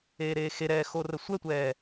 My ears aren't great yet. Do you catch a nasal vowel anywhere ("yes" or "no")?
no